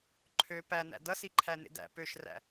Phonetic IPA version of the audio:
ǃʰ ø p æ n æ̰ d ʌ s i ǃʰ æ n ḛ d æ̰ p ø ʃ r æ̰

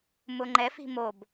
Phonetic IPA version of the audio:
m ʊ ŋ͡ǃ ɛ f i̤ m o b

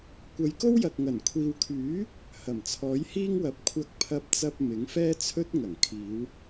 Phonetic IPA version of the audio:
kʷ ɐ˨˧ j k o˥ w j ɐ˨ k̚ ŋ ɐ˨˩ n kʷʰ iː˨ w kʰ yː˨˥ | h ɐ˨˩ m t͡sʰ ɔː˨˥ j h iː˥ ŋ w ɐ˨˥ p̚ kʷʰ ɐ˧ k̚ pʰ ɐ˧ p̚ t͡s ɐ˧ p̚ m ɪ˨˥ ŋ f ɛː˥ t͡sʰ ɵ˥ t̚ ŋ ɐ˨˩ ŋ kʰ iː˨˧ w

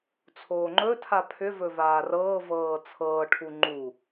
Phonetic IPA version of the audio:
t͡sʰ oː ŋ͡ǃ ɵ tʰ a pʰ ʏ v ɵ v aː r ɤː v ɤː t͡sʰ ɤː ʈʰ u ŋ͡ǃ u

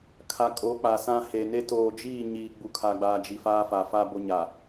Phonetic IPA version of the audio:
kʰ a˨ kʼ o˨˦ k͡p a˨ s ã˦ h e˨ n e˦ t oː˨ d͡ʒ iː˦˨ ɲ iː˨ ɡ͡b u˨ kʰ a˨ ɡ͡b aː˨ d͡ʒ i˨ f aː˦ f a˨ f a˦ b o˦ ɲ a˨

